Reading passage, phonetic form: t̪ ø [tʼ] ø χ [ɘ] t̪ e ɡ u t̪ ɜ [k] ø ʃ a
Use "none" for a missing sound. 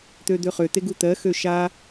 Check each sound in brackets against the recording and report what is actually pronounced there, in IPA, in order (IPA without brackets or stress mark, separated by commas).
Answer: d̪, ø, x